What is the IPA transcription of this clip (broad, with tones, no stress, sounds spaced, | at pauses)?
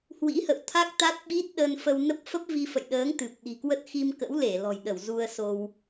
h w ḭ˧˥ h ə̰˧˨ w t̪ʰ a˦˥ k̚ t̪ a˦˥ t̚ ɓ i˦˥ t̚ ɗ ə˧ n f ə˧ w n ə˦˥ p̚ f ə˦˥ p̚ v i˧ f ə̰˧˨ j ɗ əː˨˦ ŋ t̪ ɨ˨˩ p̚ ɗ i̤˨˩ k w ə˦˥ t̚ x i˧ m k ə̰˧˥ w l e˧˩ l ɔ̤˨˩ j ɗ ə˧˩ w z u˧ ə̯ s o˧ w